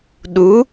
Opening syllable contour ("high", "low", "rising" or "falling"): rising